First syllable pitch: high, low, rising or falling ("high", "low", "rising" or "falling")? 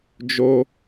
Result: high